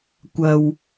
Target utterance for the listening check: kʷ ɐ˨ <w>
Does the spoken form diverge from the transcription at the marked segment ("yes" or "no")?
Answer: no